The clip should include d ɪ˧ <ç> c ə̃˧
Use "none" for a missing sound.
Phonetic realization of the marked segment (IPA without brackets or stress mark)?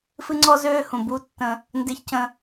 ç